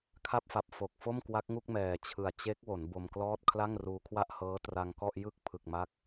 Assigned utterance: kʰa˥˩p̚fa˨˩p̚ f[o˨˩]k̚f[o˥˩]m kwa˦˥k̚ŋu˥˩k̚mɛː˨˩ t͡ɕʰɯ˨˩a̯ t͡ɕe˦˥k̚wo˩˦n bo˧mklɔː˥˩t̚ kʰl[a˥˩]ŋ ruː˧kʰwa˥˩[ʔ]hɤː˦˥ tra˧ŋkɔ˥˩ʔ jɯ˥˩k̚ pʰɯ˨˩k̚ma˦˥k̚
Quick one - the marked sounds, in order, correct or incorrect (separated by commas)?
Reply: correct, correct, correct, correct